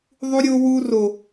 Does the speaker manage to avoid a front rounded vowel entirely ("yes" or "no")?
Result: yes